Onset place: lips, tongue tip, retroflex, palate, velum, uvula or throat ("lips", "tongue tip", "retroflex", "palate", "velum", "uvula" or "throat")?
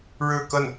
retroflex